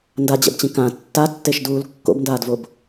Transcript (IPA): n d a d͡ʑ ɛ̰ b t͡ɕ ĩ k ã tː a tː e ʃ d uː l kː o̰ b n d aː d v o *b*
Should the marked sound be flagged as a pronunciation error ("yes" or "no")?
no